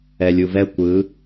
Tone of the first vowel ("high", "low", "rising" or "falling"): low